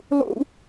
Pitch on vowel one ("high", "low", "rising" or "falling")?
high